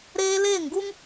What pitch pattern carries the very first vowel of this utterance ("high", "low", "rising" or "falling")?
high